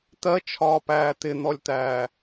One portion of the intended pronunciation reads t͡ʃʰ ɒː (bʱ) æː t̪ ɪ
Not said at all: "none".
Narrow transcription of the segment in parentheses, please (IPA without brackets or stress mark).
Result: p